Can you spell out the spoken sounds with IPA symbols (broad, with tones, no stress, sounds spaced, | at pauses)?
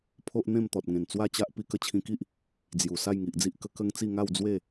pʰ o˦ ʔ n̪ ẽ˥˧ m t̪ ɔ˨ t̚ ŋ ẽ˨˩ n t͡s w a˥˧ t͡ɕ a˦ ʔ p i˧ k ə˦ t͡ɕʰ ĩ˧ k i˦ ʔ | d͡z j u˨˩ s a˥˧ j ŋ i˨ ʔ d͡z i˦ ʔ k ə˦ k ə˦ ŋ t͡s i˥˧ ŋ a˥˧ w d͡z w e˥˧